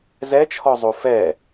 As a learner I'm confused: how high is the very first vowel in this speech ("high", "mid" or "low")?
mid